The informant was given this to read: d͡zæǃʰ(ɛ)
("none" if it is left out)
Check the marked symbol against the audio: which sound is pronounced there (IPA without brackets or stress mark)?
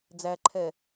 ɛ